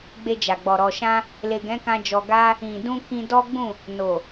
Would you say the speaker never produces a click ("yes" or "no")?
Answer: yes